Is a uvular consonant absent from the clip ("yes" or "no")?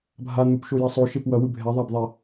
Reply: yes